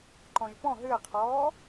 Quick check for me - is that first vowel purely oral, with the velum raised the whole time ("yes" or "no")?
no